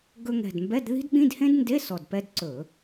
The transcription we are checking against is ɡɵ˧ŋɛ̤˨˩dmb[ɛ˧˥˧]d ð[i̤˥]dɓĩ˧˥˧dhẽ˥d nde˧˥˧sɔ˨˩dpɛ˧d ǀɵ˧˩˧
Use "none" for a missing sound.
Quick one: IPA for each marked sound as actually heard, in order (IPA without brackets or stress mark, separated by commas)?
ɛ˧˥˧, i̤˥